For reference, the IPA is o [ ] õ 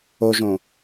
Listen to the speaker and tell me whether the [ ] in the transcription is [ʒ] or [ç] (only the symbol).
ʒ